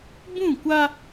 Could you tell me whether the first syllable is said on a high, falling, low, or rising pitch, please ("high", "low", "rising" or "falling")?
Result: falling